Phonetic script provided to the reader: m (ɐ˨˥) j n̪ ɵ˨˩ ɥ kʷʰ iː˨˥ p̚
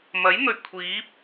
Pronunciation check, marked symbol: correct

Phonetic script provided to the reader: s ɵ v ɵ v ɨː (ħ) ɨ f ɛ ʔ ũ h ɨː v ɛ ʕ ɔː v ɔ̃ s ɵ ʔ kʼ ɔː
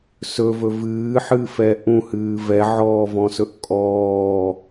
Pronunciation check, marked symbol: correct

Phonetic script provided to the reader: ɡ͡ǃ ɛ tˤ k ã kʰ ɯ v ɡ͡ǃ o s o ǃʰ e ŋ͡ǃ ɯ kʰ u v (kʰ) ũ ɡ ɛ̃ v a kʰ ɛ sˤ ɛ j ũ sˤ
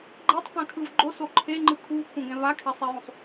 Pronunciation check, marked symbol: correct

